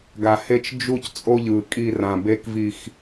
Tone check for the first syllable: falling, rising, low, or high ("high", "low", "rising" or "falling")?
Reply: low